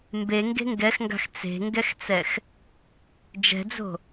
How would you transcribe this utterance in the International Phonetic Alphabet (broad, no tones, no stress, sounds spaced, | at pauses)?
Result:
m b e ŋ ɡ e̤ ŋ ɡ ɛ x ŋ ɡ a̤ x t͡s e̤ ŋ ɡ ɛ x t͡s ɛ x | d͡ʒ ɛ̤ d͡z o̤